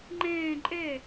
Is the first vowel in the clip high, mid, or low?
mid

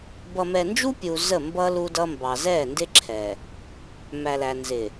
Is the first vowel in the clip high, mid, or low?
mid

